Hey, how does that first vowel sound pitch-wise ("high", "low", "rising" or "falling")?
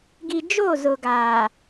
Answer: low